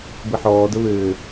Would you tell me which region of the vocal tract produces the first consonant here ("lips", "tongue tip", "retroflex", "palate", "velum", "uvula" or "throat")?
lips